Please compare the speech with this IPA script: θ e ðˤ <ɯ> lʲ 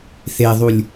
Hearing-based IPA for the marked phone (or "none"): u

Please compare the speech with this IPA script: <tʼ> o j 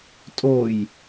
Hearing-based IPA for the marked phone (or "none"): tʼ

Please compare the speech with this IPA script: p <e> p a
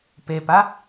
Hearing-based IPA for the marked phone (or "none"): e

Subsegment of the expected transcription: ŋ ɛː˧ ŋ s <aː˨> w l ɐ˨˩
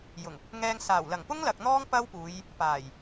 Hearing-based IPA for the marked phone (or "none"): aː˨˩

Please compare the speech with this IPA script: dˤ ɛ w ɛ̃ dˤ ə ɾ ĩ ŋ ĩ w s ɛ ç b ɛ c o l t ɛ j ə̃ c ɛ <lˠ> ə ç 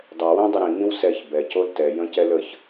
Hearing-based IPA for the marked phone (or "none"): l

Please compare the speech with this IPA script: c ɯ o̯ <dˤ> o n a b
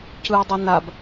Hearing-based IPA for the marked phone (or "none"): dˤ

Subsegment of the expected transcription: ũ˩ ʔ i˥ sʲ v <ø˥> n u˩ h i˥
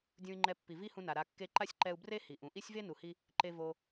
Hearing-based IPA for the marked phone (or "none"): e˥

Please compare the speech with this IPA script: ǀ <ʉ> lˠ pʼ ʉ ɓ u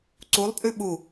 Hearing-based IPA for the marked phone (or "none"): u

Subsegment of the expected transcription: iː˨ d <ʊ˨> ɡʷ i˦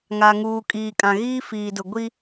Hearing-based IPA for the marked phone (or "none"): ʊ˨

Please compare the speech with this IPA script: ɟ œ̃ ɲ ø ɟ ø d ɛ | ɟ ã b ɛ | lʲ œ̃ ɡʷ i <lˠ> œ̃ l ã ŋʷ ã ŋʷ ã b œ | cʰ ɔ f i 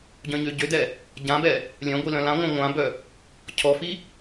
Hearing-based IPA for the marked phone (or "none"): l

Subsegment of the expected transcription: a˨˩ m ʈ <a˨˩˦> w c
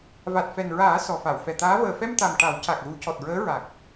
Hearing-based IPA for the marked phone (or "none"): a˨˩˦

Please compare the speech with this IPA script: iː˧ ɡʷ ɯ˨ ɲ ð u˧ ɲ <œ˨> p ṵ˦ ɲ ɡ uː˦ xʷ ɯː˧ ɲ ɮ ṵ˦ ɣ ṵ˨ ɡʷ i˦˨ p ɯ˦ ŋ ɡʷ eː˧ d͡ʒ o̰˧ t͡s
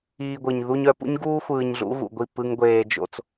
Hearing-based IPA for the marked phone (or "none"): œ˨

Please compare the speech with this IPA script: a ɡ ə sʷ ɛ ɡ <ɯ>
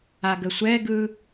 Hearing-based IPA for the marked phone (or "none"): ɯ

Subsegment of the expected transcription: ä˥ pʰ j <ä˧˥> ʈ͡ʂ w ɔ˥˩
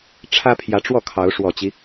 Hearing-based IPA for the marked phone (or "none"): ä˧˥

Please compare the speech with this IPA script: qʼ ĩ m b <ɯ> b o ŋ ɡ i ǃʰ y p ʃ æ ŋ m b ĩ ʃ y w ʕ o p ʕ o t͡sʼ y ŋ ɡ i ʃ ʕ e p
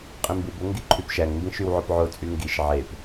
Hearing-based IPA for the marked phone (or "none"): ɯ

